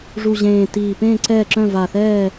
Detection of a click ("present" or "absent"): present